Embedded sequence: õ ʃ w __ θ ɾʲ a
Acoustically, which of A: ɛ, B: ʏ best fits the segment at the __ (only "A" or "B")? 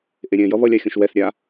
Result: A